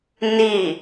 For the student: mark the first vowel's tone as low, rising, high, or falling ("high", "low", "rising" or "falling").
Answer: falling